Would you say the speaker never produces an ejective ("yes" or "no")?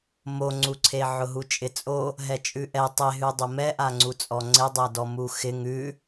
no